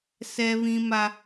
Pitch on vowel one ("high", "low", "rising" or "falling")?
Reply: high